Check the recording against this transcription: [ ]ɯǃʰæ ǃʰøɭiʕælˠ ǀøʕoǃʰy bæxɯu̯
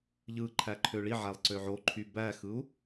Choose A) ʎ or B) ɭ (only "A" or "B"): A